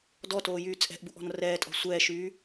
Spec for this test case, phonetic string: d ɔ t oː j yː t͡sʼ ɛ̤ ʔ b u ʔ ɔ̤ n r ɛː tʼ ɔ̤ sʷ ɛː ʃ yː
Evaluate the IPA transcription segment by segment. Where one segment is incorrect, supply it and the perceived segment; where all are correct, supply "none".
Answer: none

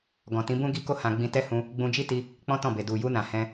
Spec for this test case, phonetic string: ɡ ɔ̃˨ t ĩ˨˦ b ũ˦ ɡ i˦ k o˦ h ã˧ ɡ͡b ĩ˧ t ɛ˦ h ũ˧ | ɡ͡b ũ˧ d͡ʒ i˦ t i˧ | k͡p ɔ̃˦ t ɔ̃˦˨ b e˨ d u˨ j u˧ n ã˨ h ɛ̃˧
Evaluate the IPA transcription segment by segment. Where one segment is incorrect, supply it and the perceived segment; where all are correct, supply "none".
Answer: none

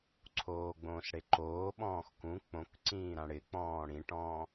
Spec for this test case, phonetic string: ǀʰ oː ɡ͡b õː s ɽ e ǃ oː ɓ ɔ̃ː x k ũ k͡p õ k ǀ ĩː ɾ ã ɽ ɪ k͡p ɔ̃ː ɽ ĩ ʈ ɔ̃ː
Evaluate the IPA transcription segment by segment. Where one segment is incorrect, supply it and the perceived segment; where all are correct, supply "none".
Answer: none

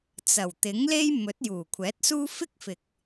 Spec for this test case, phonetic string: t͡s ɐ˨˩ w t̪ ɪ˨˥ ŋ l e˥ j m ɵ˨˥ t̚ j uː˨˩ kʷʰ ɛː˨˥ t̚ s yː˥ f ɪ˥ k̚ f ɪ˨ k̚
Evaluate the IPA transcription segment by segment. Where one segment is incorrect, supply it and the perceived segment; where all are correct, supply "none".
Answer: yː˥ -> uː˥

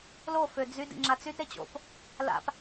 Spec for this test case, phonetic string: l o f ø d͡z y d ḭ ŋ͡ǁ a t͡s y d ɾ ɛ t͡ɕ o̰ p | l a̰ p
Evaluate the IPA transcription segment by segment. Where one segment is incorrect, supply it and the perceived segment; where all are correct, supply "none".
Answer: ɛ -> e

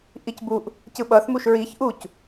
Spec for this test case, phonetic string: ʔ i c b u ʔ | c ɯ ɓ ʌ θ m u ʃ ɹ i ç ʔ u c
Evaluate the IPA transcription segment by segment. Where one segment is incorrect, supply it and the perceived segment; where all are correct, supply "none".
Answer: none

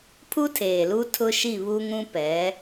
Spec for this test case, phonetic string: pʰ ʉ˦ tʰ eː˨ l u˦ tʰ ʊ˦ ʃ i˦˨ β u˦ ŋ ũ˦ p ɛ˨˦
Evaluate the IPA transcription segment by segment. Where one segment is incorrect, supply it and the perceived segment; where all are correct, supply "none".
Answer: ʉ˦ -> u˦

